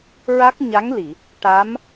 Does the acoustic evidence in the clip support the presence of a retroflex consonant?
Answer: yes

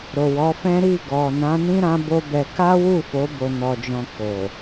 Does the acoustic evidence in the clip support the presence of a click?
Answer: no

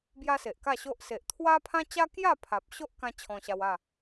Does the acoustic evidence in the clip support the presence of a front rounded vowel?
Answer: no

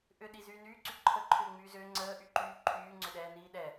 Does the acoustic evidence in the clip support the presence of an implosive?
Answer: yes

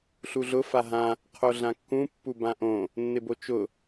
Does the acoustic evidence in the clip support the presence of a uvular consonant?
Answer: yes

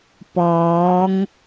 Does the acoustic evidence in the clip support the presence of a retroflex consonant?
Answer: no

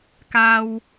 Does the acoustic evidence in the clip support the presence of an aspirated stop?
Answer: no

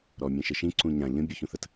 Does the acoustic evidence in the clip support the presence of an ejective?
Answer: no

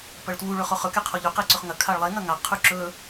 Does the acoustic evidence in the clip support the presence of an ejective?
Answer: no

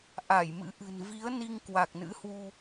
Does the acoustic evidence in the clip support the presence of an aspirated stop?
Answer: no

